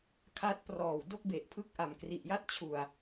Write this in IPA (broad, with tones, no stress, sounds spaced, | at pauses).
kʰ a˦˥ t̚ p r ɔː˨˩ w d o˥˩ k̚ b e˨˩ ʔ pʰ ɯ˦˥ k̚ ʔ a˨˩ m k r i˨˩ ʔ j a˥˩ t̚ t͡ɕʰ u˨˩ a̯